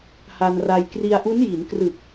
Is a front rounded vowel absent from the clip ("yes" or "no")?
yes